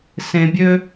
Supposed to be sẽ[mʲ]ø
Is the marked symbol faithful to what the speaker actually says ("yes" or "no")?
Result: no